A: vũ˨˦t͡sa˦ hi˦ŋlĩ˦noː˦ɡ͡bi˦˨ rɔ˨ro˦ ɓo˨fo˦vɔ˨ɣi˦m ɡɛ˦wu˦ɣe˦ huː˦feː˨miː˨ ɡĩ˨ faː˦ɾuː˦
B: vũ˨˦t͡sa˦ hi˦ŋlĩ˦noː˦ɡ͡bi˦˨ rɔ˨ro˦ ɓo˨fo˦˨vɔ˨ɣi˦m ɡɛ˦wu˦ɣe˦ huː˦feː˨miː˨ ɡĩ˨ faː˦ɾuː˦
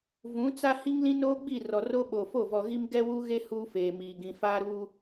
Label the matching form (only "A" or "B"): B